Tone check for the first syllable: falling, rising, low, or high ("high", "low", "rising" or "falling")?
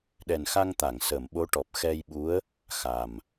low